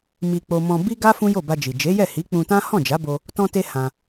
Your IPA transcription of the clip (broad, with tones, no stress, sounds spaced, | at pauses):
m i˧ k͡p o˧ m ɔ̃˧ b i˦ ɡ a˦ f ũ˦ j o˦˨ b a˧ d͡ʒ i˨ d͡ʒ e˨˦ j ɛ˦˨ h i˨˦ k͡p ũ˧ t ã˦ h ɔ̃˦˨ d͡ʒ a˨˦ b o˧ | t ɔ̃˧ t e˧ h ã˧